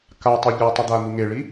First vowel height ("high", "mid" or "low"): low